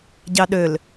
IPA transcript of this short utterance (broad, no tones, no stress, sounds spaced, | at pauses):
ɟ ɑ ɗ ø l